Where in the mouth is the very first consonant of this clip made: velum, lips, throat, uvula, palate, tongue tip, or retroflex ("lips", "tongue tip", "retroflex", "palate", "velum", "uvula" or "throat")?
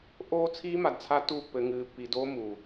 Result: throat